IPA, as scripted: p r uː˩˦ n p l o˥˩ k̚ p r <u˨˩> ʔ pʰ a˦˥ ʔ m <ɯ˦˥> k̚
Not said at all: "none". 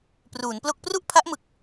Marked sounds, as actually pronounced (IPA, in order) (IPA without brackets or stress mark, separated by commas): u˥˩, ɯ˨˩